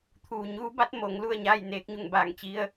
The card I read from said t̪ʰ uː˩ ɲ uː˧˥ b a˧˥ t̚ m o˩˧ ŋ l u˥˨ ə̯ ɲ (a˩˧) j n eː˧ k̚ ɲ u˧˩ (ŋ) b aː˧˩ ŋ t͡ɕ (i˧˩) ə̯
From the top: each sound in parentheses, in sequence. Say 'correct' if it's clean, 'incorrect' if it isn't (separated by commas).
incorrect, correct, incorrect